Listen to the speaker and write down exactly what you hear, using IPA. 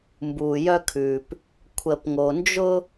m b uː˨ j œ˦ kʰ ʉː˨ p | kʷʰ ə˨ p ŋ o˨ n d͡ʒ ʊ˦

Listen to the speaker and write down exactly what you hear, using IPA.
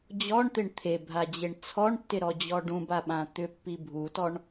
d͡ʑ ɔ ɳ t̪ ɪ ɳ t̪ʰ e bʱ a d͡ʑ e ɳ t͡sʰ ɔ ɳ tː ɪ ɾ ɔ d͡ʑ ɔ ɖ ũ b a ɓ ã t̪ ʏ pː i bʱ u t ɔ ɳ

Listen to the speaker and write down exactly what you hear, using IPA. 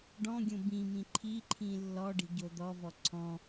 ɖ ɔ̃ ɡʲ õ b ĩ m ĩ ǃʰ i ǃʰ ĩ lː ɔ ɖ i̤ ɟ o d̪ ɔ v ɔ ǀʰ ɔ̃

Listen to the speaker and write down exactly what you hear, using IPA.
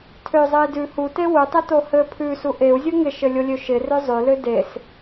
tʰ ø zˤ ɘ i̯ d ʉ h u t e w u tˤ ɘ t o h ɘ pʰ ʉ s u ʔ e u̯ zʲ o ŋ ɪ ʃ ɘ lʲ o lʲ ø ʃ ɪ r ø zˤ ø l ø d e s

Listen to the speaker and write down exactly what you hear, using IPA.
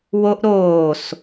w o ʔ ɾ oː s

